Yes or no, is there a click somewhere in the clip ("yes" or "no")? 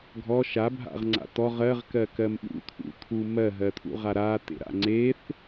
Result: yes